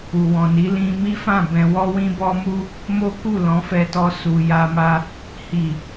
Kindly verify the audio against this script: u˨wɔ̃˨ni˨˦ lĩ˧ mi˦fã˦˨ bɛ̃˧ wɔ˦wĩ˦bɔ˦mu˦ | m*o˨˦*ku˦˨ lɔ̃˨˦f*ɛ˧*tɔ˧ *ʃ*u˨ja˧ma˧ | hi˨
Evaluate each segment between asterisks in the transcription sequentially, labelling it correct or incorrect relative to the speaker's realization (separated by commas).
incorrect, correct, incorrect